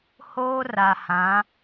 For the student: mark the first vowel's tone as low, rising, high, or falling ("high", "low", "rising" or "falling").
high